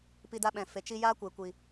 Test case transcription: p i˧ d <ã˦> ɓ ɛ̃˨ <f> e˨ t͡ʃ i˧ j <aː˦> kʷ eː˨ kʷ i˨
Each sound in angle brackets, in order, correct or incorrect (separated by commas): incorrect, correct, correct